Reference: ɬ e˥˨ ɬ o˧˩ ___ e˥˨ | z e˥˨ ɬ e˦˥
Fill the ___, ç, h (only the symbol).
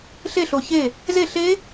ç